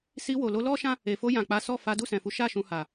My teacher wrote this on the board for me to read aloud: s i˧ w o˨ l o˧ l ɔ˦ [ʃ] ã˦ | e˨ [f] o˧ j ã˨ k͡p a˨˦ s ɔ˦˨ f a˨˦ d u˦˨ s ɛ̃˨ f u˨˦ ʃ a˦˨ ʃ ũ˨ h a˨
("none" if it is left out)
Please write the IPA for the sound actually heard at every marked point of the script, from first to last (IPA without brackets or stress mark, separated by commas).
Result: ʃ, f